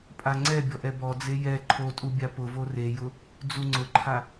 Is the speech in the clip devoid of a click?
no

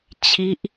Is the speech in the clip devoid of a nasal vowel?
yes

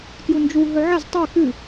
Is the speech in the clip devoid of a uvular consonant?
yes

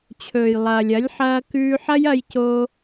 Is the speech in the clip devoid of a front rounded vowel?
yes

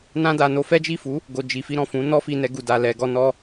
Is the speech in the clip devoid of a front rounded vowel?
yes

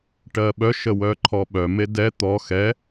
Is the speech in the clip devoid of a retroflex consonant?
no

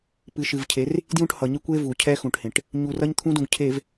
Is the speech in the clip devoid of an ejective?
yes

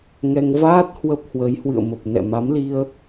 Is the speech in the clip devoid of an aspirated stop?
yes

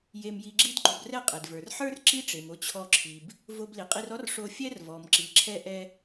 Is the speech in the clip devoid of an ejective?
no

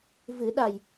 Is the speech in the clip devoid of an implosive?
no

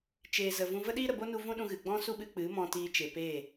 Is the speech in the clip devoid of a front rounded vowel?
yes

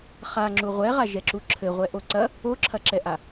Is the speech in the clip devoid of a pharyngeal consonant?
yes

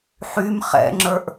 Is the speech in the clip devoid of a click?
no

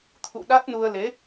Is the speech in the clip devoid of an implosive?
no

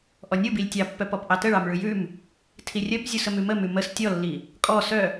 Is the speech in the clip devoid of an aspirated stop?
no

